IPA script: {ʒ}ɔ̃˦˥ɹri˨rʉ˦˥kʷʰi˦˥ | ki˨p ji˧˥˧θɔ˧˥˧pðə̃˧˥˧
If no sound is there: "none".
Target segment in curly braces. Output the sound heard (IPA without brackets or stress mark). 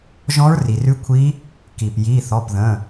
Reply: ʒ